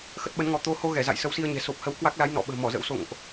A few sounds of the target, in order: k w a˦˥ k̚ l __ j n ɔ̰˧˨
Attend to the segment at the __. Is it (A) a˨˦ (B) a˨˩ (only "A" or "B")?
A